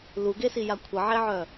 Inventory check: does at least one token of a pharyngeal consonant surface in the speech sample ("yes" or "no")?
yes